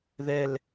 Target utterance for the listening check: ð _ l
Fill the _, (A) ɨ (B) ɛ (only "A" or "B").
B